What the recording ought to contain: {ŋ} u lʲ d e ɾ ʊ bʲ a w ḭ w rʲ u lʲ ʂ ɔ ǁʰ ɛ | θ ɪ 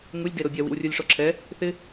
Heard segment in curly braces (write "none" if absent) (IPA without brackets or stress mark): ŋ